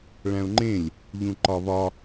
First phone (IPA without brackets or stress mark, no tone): ɭ